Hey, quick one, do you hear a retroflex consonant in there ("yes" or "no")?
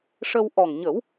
yes